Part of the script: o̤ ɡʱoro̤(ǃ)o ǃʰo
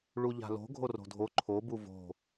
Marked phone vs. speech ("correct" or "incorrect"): incorrect